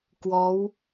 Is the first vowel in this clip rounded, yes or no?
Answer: yes